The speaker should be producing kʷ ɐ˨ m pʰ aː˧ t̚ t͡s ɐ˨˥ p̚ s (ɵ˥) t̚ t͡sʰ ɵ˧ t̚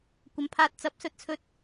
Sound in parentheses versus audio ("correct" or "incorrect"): incorrect